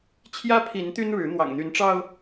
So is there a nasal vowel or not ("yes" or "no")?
no